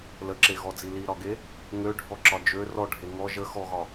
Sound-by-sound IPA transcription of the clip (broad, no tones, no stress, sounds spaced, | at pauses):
l ə ǁ e ɣ ɔ d͡z i l i ɾ ɒ ɡ e | ŋ ø ɖʱ ɔ ǁ ɒ d͡ʒ ø r ɔ ɖʱ e ŋ ɔ ʒ ə x ɔ ɣ ɒ